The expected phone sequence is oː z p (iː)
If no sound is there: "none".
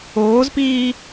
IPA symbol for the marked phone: iː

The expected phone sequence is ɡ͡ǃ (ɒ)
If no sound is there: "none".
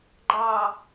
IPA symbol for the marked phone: ɑ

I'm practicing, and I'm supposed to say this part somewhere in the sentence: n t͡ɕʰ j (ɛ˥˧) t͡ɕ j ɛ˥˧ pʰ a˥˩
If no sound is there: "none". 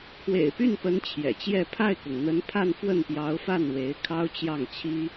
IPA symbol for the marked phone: ɛ̰˨˩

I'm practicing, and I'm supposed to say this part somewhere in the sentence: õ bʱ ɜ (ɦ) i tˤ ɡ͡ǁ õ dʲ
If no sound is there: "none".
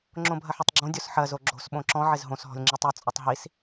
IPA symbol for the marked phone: ħ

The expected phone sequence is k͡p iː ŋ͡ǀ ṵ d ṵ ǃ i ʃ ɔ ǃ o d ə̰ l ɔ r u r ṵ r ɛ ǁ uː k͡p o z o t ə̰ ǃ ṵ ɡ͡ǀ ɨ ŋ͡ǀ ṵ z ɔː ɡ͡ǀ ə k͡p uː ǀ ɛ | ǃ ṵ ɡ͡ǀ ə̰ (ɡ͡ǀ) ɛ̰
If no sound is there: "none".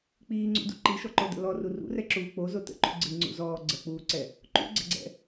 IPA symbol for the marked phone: ɡ͡ǀ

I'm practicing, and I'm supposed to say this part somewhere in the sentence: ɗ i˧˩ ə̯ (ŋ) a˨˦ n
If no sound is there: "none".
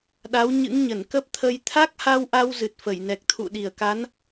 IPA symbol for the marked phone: k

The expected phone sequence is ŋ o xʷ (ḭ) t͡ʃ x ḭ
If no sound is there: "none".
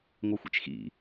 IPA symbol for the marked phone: ḭ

